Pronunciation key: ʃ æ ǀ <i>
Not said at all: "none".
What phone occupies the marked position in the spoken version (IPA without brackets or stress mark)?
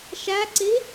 i